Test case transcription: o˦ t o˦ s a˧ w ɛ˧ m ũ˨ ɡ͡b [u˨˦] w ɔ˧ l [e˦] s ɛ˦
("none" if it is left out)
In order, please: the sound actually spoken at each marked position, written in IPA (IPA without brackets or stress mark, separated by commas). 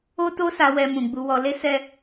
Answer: u˧, e˦